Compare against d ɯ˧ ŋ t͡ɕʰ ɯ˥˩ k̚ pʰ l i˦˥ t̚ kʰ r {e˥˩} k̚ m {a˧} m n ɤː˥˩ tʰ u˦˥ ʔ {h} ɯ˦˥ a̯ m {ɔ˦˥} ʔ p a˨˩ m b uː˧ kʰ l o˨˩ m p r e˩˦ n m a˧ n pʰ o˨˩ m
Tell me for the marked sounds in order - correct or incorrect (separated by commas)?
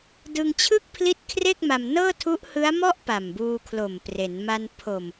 correct, correct, correct, incorrect